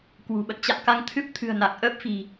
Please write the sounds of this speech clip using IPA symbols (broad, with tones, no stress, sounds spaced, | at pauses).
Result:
k w ṳ˨˩ ɓ ə̰˧˨ n t͡ɕ a̰˧˨ m k a˧ ŋ t̪ʰ ɨ˦˥ p̚ t̪ʰ ɨ̤˨˩ ə̯ n a˨˩ k̚ ʔ əː˦˥ p̚ f i̤˨˩